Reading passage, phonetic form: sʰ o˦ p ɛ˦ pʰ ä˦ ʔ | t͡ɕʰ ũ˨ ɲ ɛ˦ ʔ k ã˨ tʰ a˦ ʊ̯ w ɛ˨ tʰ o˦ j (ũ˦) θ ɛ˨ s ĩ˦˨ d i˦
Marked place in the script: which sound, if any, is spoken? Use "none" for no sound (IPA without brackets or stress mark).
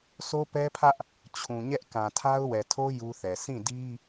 u˦